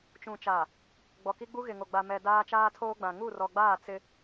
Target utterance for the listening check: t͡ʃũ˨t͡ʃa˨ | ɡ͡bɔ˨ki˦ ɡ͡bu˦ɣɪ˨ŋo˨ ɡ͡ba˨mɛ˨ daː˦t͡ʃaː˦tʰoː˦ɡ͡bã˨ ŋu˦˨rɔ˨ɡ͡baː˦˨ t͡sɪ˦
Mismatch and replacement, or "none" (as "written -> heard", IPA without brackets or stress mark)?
none